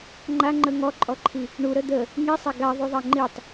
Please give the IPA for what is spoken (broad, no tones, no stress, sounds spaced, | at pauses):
ŋ͡ǃ a ŋ͡ǃ ə ŋ ɔ ǃʼ ɔ ǃʰ i | ɳ u ɾ ə d̪ ə | ŋ i sˤ a ɡ a ðˤ u ðˤ a ŋ͡ǃ i tˤ